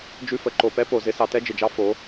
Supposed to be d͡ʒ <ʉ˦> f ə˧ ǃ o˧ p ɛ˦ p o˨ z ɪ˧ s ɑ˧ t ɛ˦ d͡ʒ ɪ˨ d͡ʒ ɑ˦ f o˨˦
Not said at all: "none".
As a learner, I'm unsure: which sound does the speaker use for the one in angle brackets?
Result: ʉ˦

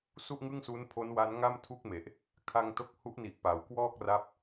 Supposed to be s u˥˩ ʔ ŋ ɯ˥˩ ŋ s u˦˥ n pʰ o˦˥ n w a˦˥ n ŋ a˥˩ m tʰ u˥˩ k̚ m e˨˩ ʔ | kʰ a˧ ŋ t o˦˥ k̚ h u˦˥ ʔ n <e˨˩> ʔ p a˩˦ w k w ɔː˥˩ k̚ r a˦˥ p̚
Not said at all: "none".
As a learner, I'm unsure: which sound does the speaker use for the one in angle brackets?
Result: i˨˩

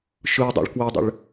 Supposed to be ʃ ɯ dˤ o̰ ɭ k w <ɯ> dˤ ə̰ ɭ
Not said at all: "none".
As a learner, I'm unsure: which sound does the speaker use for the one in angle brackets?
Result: ə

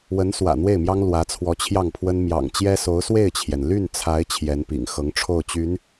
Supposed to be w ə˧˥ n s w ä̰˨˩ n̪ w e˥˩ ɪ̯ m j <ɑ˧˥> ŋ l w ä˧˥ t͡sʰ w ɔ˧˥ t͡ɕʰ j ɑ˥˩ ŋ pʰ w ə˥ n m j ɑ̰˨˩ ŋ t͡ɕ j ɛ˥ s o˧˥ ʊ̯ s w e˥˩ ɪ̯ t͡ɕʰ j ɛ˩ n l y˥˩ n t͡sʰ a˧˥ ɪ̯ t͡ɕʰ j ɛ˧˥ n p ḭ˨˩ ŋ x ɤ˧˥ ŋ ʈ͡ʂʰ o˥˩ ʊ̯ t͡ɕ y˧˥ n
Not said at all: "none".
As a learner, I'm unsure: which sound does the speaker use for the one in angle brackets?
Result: ɑ˥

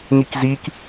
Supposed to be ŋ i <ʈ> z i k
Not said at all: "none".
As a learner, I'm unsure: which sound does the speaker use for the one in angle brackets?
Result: k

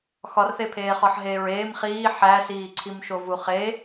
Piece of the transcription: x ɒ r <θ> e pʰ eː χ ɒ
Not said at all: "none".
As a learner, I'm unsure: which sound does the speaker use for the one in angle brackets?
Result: θ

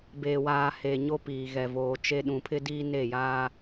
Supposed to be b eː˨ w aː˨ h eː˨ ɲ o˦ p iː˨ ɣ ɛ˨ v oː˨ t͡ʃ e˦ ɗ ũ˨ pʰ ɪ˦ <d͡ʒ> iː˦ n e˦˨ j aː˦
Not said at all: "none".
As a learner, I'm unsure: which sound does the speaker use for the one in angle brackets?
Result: d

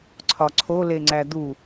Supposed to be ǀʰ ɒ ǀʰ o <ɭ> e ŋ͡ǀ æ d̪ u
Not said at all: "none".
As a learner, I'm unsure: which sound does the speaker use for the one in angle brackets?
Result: l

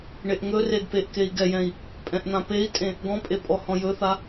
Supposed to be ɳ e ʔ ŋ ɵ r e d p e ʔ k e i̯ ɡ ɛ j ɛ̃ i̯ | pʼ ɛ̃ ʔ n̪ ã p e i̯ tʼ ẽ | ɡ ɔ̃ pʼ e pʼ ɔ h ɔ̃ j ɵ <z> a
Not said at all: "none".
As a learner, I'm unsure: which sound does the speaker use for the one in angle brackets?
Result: θ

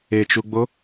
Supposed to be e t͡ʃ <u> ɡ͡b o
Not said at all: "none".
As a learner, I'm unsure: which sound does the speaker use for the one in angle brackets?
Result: u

